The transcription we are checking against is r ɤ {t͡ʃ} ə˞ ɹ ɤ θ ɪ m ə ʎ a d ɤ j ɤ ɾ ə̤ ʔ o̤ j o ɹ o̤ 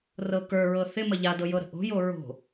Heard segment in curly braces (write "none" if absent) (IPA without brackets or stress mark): k